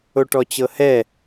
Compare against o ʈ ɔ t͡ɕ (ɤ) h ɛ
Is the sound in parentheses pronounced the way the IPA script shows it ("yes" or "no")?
yes